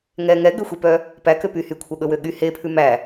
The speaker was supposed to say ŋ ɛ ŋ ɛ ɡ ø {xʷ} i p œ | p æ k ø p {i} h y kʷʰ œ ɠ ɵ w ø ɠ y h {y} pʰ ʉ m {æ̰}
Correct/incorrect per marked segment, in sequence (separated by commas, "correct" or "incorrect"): correct, incorrect, incorrect, incorrect